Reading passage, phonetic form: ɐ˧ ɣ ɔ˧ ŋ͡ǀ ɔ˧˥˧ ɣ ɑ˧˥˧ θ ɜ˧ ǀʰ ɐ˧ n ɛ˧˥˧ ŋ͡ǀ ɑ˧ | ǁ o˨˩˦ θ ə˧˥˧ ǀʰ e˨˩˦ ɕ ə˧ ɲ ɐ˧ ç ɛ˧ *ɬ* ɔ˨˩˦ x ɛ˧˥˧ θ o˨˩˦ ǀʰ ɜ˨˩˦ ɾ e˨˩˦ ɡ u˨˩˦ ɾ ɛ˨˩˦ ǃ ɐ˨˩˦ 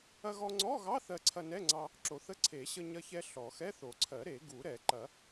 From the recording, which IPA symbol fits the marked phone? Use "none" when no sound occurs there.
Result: ɬ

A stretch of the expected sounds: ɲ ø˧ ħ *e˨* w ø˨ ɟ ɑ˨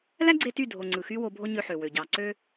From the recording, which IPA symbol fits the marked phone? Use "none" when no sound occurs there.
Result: ø˨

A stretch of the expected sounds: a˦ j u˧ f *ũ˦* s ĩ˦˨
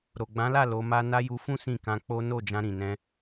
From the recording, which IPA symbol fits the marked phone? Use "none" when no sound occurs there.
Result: ũ˦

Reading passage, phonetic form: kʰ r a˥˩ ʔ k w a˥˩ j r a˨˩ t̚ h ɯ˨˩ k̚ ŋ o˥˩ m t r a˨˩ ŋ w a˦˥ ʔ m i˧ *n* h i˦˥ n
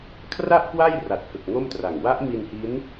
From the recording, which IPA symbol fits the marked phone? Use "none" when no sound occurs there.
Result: n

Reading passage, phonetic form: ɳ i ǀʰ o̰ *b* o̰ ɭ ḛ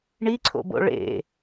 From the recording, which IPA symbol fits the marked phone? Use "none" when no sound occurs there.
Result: b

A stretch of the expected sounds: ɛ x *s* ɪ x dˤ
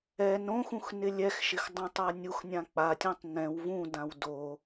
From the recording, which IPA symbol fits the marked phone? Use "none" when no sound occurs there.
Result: ʃ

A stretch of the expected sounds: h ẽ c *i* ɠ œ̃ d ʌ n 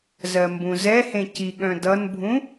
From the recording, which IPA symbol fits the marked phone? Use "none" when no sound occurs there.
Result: i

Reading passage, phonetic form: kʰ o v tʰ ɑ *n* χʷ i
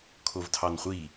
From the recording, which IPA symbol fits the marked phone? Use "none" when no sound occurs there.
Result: n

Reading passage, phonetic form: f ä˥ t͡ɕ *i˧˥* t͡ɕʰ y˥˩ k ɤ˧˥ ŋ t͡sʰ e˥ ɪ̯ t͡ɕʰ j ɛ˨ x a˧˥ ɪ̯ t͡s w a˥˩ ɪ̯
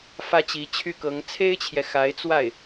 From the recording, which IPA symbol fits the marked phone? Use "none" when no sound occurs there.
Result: i˧˥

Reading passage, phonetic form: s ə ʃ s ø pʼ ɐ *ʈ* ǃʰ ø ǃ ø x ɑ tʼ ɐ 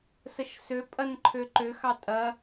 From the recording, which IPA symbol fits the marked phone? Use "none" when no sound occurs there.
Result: n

